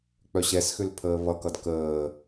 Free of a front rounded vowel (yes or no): no